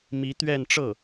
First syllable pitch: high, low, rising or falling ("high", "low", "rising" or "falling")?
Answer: rising